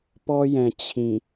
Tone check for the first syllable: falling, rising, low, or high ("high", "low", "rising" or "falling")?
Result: high